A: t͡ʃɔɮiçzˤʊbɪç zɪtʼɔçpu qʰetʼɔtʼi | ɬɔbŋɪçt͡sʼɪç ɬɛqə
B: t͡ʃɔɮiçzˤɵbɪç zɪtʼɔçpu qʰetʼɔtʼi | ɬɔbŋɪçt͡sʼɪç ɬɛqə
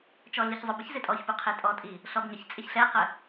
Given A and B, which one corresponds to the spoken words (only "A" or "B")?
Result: A